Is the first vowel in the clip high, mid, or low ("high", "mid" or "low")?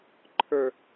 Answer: mid